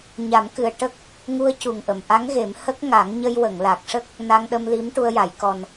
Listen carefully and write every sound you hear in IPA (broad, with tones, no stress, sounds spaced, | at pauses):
ɲ a˨˩˦ m k ɨ˨˩ ə̯ ʈ ə˦˥ k̚ | ŋ u˧ ə̯ c u˨˩ ŋ ʔ ə˨˩˨ m ʔ a˧˥ ŋ ɣ e˨˩˦ m h ə˦˥ k̚ ŋ a˨˩˦ ŋ ɲ ə˧ j w ə˨˩˨ ŋ l a˨˩ k̚ ʂ ə˦˥ k̚ | n a˧ ŋ ɗ ə˧ m l i˧˥ m ʈ u˧ ə̯ j a˨˩˦ j k ɔ˨˩ n